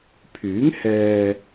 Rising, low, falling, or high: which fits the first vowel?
rising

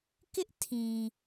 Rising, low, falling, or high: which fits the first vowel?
high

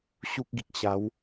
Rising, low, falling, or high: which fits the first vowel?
high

